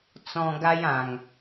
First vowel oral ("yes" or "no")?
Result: no